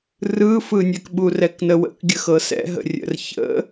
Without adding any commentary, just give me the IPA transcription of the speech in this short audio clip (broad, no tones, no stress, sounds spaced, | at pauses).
r ɯ f ɯ nʲ ɛ k ɓ u r ɛ k n ə w ə̰ k ɡʲ ə x ɤ s ɛ̰ ɦ ə̰ rʲ ə̰ r ç ə̰